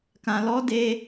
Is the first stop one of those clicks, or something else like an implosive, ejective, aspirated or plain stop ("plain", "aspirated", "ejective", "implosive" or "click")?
plain